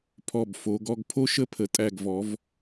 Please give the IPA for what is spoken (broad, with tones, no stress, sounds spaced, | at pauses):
pʰ ɔ˧˩ b f o˩˧ ɡ ɔ˧ ɡ pʰ o˥ ʃ ə˥˧ pʰ ə˩˧ tʼ æ˧˩ ɡ v ɔ˩˧ v